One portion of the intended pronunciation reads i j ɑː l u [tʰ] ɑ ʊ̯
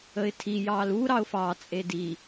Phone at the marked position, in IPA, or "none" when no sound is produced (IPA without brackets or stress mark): ɾ